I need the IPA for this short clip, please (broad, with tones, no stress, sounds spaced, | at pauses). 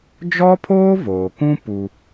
d͡ʒ ɔ˦ pʰ oː˦ v oː˨ k ũ˦ p u˦